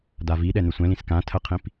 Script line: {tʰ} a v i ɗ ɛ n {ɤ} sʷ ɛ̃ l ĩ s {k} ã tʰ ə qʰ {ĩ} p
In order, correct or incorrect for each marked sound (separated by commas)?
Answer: incorrect, incorrect, correct, correct